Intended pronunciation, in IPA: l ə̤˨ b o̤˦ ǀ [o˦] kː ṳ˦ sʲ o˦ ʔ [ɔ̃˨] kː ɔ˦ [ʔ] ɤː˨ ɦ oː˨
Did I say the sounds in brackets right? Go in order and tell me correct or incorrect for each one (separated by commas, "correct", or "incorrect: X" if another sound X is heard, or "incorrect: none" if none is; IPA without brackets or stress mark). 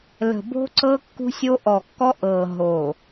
incorrect: ɤ˦, incorrect: ɔ˨, correct